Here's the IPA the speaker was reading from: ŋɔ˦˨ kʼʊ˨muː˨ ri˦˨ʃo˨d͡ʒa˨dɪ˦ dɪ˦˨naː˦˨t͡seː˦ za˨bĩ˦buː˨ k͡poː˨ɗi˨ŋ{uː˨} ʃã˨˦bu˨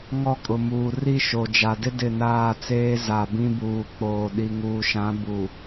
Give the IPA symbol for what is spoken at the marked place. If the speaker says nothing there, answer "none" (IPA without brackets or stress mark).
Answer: uː˨